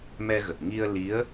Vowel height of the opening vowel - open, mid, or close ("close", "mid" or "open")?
mid